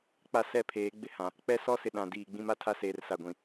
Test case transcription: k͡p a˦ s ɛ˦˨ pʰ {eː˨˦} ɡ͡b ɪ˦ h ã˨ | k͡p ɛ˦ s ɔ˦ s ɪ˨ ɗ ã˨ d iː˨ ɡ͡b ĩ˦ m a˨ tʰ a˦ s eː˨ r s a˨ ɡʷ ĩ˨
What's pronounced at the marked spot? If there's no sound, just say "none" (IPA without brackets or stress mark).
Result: eː˨˦